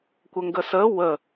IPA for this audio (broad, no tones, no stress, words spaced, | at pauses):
kʷəŋɡəsə wə